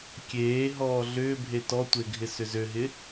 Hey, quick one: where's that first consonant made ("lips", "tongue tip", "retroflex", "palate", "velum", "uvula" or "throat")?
velum